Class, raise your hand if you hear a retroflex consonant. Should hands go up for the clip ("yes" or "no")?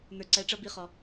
yes